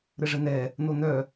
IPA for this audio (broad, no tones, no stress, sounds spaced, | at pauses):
ɾ ə ʐ ə n̪ ɛ | n̪ o n̪ œ